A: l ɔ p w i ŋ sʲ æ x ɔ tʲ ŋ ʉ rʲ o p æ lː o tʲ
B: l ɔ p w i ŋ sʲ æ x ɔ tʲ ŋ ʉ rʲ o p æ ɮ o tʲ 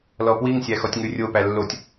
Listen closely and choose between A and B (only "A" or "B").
A